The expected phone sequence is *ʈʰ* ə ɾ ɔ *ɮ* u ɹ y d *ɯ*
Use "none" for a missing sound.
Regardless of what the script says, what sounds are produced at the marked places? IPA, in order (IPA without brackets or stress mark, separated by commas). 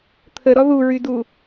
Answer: t̪ʰ, ð, u